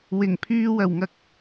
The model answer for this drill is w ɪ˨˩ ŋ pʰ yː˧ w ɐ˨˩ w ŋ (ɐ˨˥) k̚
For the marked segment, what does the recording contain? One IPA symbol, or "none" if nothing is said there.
ɐ˧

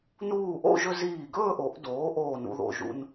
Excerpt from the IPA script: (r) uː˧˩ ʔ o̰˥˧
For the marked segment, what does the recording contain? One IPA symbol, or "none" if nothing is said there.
n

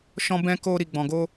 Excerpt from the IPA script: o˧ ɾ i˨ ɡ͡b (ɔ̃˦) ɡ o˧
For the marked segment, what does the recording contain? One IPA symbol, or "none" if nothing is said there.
ɔ̃˨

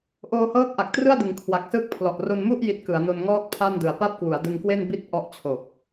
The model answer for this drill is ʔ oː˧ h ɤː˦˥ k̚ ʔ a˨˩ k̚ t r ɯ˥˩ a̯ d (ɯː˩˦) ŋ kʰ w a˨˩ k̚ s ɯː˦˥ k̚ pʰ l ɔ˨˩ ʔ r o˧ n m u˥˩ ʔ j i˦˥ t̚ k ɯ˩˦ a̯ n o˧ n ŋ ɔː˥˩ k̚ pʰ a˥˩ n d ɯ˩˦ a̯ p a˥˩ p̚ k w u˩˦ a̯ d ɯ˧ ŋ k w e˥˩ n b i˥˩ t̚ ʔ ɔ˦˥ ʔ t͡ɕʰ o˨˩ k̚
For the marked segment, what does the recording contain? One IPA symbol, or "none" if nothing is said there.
ɯ˩˦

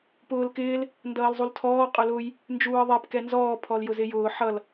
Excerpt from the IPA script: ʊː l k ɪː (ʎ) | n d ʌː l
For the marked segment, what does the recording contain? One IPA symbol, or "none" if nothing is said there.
l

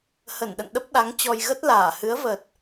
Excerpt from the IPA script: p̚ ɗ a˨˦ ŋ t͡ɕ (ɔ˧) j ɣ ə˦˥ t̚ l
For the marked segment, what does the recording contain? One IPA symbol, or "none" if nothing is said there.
ɔ˧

